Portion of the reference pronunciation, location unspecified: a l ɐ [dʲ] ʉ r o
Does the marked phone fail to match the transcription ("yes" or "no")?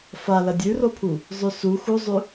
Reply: no